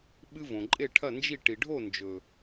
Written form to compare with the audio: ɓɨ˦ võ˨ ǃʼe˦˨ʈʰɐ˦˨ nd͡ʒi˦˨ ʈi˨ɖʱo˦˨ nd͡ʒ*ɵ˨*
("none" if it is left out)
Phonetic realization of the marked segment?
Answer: ɵ˨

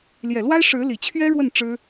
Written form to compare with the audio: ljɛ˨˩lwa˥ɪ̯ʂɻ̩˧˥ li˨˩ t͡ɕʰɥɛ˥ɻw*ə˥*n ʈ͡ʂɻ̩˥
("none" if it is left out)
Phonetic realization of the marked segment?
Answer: ə˥˩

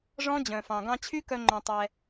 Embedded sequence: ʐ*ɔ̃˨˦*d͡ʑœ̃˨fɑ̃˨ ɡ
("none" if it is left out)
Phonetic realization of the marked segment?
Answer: ɔ̃˦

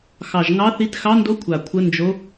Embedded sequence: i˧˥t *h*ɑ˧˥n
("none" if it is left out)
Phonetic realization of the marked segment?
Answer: x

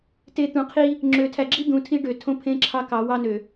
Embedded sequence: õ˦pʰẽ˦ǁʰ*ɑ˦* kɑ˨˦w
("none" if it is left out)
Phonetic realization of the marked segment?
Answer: ɑ˦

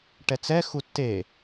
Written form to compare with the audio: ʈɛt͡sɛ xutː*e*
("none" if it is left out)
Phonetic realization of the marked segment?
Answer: e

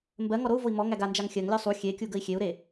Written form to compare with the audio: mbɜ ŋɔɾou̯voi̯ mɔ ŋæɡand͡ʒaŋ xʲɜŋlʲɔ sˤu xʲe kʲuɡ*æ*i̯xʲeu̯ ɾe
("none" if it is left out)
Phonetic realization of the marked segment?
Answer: ə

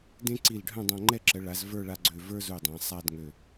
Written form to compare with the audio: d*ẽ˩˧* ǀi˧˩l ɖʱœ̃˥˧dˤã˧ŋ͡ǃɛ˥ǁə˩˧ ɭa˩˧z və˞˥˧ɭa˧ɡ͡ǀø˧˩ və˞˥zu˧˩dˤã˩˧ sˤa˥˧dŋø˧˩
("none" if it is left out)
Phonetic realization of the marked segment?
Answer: ẽ˥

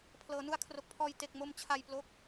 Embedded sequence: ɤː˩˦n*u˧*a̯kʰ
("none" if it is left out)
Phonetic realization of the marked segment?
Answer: u˧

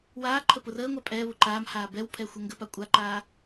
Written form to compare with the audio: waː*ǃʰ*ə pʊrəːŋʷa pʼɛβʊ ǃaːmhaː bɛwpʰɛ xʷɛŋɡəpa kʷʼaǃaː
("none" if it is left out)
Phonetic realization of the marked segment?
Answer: ǃʰ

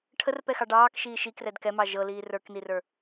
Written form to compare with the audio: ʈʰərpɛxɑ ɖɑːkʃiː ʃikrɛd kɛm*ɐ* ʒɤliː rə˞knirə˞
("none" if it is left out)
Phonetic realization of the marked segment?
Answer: ɑ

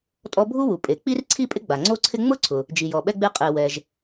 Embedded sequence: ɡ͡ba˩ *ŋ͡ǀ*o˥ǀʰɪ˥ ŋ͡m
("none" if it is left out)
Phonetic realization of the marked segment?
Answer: ŋ͡ǀ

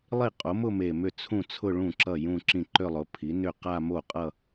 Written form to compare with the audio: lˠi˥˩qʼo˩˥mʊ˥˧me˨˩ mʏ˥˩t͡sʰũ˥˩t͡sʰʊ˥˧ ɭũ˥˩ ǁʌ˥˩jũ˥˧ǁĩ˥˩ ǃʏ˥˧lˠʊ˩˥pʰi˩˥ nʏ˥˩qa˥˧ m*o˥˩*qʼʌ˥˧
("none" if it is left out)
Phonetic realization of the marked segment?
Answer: o˥˩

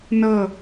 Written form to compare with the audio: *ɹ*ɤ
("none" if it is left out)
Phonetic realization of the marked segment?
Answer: n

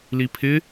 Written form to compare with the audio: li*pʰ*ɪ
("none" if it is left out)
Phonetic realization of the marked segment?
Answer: pʰ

